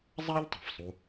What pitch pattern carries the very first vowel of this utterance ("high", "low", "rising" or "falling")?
high